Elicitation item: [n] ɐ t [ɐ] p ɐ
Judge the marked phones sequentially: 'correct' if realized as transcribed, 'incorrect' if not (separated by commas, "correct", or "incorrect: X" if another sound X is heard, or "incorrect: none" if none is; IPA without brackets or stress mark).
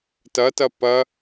incorrect: t, correct